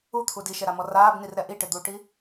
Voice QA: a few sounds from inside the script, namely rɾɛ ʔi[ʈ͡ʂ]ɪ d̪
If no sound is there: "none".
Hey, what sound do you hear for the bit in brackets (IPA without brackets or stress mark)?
ʈ